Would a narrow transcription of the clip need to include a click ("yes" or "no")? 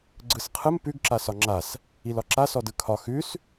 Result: yes